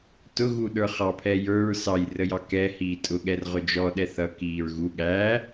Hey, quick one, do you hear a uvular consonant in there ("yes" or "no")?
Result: yes